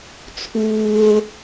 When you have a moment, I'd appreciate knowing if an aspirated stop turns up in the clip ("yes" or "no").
yes